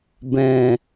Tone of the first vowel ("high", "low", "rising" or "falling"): low